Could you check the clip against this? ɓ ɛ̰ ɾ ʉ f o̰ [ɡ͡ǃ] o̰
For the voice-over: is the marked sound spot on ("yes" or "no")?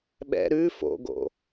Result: no